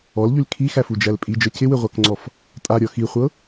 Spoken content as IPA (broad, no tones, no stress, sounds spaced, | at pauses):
ɔ l ʎ y l kʰ i x æ f u d͡ʒ æ l pʼ i d͡ʒ ɤ c ɪ w ɪ ʁʷ a k ŋ͡ǀ ɔ f | tʼ a ɾʲ ɔ x i χʷ ɤ